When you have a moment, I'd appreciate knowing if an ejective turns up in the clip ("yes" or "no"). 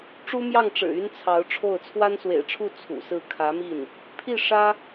no